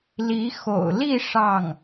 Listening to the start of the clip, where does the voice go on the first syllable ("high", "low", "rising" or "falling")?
rising